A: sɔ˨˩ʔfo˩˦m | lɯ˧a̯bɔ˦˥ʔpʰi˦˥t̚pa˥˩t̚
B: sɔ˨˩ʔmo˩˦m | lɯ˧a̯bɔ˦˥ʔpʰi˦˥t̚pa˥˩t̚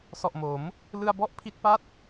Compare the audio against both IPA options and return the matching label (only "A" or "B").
B